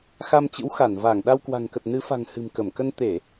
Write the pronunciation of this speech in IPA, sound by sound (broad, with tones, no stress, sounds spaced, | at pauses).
x a˧ m t͡ɕ ɨ̰˧˥ w x a˧˩ n v aː˧˩ ŋ ɗ a˧ w k w a̤˨˩ ŋ k ə˨˩ t̚ n ɨ˨˦ f a̤˨˩ ŋ h ɨ̤˨˩ m k ə˧˩ m k ə˧ n t̪ e˧˩˨